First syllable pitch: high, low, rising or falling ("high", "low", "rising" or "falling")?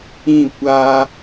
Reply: falling